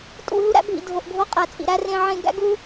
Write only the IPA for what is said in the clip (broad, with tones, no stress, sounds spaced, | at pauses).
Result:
tʼ ṵ˦˨ ɦ u˦ ɾ æ̰˦ bʱ ḭ˨ dʱ o˨ ʔ ɡʱ o˦ qʼ æ˨ t͡sʼ ḭ˨ ɾ æ˦ r ẽ˦ ʕ ẽ˦ ɡ æ̰˦ ɡ u˦